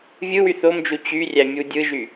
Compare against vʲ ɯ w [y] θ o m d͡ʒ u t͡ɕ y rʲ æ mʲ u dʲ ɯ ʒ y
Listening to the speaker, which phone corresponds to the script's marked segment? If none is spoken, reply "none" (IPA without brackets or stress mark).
y